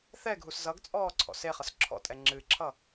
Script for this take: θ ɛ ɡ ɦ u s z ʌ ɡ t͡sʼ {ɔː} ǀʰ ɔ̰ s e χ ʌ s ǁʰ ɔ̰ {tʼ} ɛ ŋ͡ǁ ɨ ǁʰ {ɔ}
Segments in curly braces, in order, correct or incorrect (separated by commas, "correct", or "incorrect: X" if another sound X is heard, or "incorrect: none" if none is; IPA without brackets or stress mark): correct, correct, incorrect: ʌ